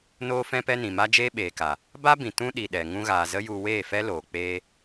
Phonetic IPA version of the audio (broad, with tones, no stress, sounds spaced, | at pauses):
n oː˧ f ɛ̃˧ p ɛ˧ n ĩ˨ m a˦ d͡ʒ eː˦ ɓ eː˨ k a˨ | b a˦ b ĩ˨ t ũ˦ ɗ i˨ ɗ ɛ˨ ŋ ũ˧ ɣ aː˨ z ə˦ j u˧ w eː˦˨ f ɛ˦ l oː˨ k͡p eː˦